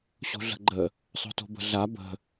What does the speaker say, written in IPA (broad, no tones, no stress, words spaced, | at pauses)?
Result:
ɕo̤ɮə̤ɡ͡ǃə | sˤo̤to̤bə̤ɮa bə̤